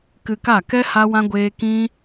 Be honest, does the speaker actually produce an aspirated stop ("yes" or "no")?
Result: no